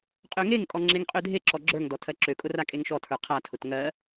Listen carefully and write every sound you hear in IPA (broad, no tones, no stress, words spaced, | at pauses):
qʼøŋeŋkʼɔ ŋ͡ǁeŋqʼødʱeǁɔ ɡ͡ǁə˞ŋdɔ tʰɜǁøkʼʊ rakʼeŋʃɔtʰə˞ qʰatʰʊt ŋɜ